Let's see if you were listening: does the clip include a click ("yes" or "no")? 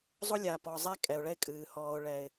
no